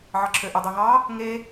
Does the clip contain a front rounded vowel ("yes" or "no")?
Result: yes